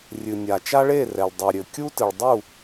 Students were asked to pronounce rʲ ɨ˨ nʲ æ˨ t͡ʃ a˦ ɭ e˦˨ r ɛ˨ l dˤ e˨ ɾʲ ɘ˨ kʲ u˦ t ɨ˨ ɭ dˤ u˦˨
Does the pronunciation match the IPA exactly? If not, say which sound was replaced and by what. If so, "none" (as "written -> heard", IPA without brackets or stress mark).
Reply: æ˨ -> a˨